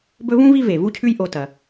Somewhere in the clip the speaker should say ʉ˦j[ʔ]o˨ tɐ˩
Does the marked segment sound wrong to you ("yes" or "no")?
no